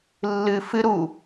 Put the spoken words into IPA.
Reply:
lːɨ fɨ ɾu

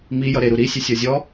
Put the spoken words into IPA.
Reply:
mi jʌɾeɾu ɾisʲe sʲɔzʲɔ

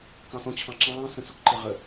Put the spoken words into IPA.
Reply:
kɑ̃sɔ̃ t͡ɕʰɑ̃ǁɑ̃ː sə̃sʊk ǃɪʁə

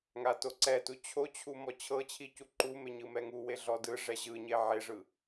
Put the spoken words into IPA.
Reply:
ŋatoǀɛtu t͡ɕʰot͡ɕʰu mɔt͡ɕʰɤt͡ɕʰi cuǃume ɲɯmɛŋuwe ɮɔdɯʐɛ ʑɯɲe ʕeʐɯ

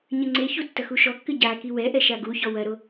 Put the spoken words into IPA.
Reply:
ɲɘŋ͡ǀeçu tːɐxuʃɔkːɨ ɟa kiwɛʔɛ ʃaɡuçɔ wɐɾo

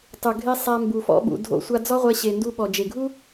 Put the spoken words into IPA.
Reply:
tˤu˨ɡʱe˧ sˤa˧ mbu˨fɔ̰˧ɓṵ˨ dʱo̰˧sʷa˧d͡zɔ˦ʁʷɛ˧ ɕe˨ndu˧ ɓɔ˨d͡ʒe˨ɡʱu˦

